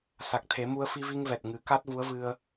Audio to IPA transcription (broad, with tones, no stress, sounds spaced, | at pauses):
s a˨˩ k̚ t̪ʰ e˨˩˦ m u˧ ə̯ f i˧ v i˧ ŋ v ɛ˨˩ t̚ ŋ ɨ˨˩˦ k a˦˥ t̚ v u˧˥ ə̯ v ɨ˧ ə̯